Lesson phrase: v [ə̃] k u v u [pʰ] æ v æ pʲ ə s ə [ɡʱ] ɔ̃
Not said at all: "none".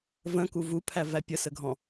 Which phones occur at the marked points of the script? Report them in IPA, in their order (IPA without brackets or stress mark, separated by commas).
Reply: ə̃, pʰ, ɡʱ